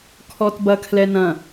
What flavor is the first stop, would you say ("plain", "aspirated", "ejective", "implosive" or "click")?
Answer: aspirated